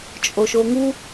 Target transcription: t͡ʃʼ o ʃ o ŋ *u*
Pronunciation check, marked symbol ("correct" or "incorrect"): correct